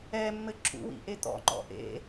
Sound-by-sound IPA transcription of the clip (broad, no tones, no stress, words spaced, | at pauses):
ɛmːɘ ǁṵwḭʔe t̪ɔ̰ŋ͡ǃɔ̰ ʔḛ